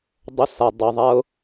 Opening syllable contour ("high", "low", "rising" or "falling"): high